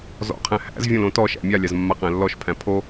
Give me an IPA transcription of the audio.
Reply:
z ɔ̰ qʰ æ̃ h æ̰ z vʲ õ l õ t ɔ ʃ æ̰ mʲ a lʲ a z mː a q æ̃ lː ɔ ʃ pʰ æ̃ pʰ o

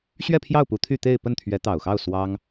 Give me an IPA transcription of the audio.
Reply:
ɕ ɥ ɛ˥˧ pʰ j ɑ˥˩ ʊ̯ p u˧˥ t̪ʰ y˥˧ t̪ e˥˧ ɪ̯ p ə˥˩ n t̪ʰ ɥ ɛ˧˥ t̪ ɑ˨˩ ʊ̯ x ɑ˥˩ ʊ̯ s w ɑ˥ ŋ

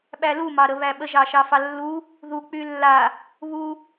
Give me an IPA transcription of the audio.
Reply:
ɓ æ l u m ɑ ɾ ə β æ ɓ ə ʒ ɑ ʃ ɑ f ɑ lː u | ð u k͡p y lː a | β u

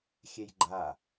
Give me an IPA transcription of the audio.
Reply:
xʲ ɛ j ɡ͡ǃ a

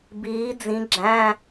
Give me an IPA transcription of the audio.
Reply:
b iː˨˦ d͡z ĩ˨˦ ɡ͡ǁ æ̃˧˥˧

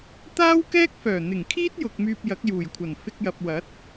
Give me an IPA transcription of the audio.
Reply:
t̪ aː˥ w k ɛː˥ k̚ f œː˨˩ n̪ ɪ˨˩ ŋ kʰ iː˥ t̚ j ʊ˨ k̚ m yː˧ p̚ j ɐ˨˥ k̚ j uː˨˩ j kʷʰ ɐ˨˩ n f ɪ˧ k̚ j ɐ˨ p̚ w ɐ˨˥ t̚

